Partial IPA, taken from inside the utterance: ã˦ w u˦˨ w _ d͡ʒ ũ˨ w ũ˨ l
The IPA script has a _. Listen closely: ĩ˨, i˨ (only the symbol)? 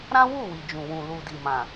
i˨